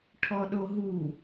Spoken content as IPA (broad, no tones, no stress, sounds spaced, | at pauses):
ʈʰ ɔ ɗ o ɦ u